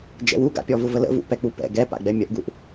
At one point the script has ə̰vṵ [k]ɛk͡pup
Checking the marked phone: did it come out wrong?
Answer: yes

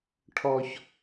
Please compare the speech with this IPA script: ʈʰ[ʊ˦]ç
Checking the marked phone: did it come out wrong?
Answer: yes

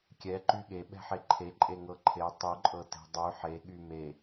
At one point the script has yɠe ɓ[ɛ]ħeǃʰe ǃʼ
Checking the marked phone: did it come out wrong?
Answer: yes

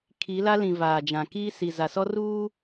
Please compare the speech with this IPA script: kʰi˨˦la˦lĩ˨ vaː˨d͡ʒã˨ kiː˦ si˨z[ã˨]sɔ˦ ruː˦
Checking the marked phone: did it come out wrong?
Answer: yes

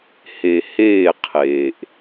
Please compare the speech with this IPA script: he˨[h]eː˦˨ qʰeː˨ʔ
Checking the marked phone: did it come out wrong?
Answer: no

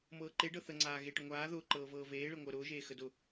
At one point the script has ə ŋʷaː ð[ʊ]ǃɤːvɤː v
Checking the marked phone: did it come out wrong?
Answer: yes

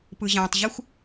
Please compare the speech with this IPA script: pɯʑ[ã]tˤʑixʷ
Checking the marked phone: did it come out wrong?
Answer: no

